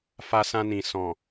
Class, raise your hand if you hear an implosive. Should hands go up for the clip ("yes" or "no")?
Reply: no